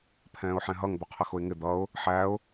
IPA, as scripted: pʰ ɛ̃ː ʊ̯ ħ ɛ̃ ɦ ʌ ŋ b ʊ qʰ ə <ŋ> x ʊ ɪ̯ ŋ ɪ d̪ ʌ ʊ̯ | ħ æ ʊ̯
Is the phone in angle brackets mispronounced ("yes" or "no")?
yes